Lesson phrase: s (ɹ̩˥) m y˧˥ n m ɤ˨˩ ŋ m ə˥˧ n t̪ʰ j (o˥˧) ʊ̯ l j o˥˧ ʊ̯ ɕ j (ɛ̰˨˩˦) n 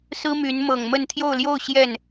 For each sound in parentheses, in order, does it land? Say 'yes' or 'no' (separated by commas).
yes, yes, no